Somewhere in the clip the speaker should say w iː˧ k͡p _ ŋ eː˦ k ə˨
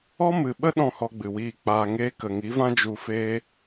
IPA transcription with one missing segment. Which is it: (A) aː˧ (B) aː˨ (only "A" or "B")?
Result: A